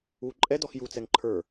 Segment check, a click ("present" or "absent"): present